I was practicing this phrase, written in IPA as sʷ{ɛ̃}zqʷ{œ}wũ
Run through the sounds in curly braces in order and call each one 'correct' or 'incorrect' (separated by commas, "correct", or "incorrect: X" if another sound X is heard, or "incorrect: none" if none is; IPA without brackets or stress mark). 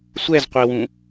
incorrect: ɛ, incorrect: ɛ